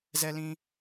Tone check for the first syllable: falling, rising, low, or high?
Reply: high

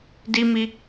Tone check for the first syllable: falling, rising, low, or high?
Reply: high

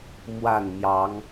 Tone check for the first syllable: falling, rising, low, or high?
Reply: falling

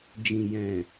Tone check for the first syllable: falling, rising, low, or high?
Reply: low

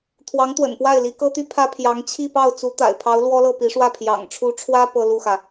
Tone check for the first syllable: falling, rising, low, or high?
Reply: rising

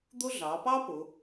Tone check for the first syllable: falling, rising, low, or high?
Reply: high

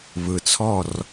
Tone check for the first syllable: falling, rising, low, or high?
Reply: low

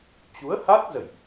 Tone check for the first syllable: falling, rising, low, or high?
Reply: rising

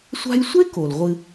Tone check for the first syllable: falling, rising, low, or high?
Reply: high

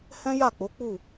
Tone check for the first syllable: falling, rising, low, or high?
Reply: high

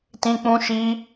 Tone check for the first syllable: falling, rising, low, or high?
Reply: high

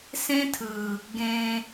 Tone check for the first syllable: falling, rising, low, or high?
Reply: high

